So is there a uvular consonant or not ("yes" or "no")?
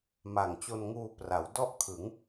no